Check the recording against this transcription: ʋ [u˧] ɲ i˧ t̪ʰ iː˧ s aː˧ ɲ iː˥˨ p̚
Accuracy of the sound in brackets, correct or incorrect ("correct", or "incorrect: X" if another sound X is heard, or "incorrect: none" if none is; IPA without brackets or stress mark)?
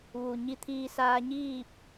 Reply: incorrect: u˩